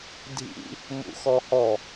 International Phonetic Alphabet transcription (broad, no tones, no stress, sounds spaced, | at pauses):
dʱ ḭ | m ṵ x ɔ h ɔ